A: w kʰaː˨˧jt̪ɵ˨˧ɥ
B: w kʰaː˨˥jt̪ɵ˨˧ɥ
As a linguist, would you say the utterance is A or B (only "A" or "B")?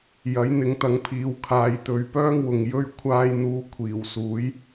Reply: A